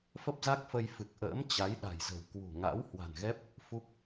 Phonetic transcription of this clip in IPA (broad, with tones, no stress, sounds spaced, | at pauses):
f ə˦˥ p̚ z a˦˥ k̚ f ə˧ j f ɨ˨˩ k̚ ʔ ə̰ː˧˥ m t͡ɕ a˨˦ j ɗ a̤˨˩ j z ə̤˨˩ w k w ṳ˨˩ ŋ a̰˧˥ w h w a̤˨˩ n ɣ ɛ˦˥ p̚ | f u˦˥ k̚